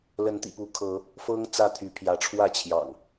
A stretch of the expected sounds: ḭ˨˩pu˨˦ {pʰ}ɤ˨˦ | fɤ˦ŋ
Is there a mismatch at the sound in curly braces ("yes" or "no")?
yes